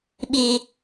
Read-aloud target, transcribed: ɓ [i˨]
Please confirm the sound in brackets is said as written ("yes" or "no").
no